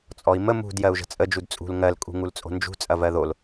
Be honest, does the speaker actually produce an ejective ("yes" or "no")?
yes